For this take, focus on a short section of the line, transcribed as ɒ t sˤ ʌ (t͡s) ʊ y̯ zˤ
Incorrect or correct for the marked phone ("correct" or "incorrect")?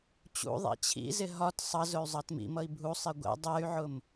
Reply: incorrect